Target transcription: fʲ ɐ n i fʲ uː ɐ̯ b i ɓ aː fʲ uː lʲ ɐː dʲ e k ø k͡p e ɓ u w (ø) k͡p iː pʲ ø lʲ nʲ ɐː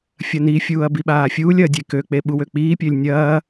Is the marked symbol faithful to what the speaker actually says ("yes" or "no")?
yes